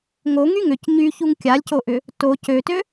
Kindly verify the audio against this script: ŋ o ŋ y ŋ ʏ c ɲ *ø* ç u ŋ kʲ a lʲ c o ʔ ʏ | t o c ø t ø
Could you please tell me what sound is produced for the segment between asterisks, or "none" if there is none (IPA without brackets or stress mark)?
y